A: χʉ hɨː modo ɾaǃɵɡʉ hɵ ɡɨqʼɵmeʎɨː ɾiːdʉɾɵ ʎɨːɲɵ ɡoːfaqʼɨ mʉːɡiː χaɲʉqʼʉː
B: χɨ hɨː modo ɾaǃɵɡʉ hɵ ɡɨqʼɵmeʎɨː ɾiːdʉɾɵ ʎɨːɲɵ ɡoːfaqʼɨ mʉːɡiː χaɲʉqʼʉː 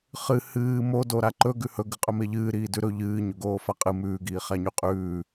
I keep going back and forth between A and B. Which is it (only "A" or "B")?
B